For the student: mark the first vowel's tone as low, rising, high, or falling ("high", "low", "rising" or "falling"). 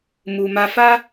low